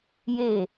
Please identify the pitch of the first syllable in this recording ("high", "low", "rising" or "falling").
falling